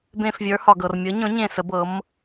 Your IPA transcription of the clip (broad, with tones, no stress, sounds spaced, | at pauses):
b ẽ˦˨ f vʲ ə˞˨˥ h ɒ˨ ɡ ɤ˨ r mʲ ɤ˨˥ ɲ ɔ̃˨˥ ɲ ẽ˦˨ s ə˨˥ b ɤ˨˥ m